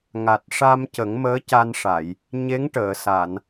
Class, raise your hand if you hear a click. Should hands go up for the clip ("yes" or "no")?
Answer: no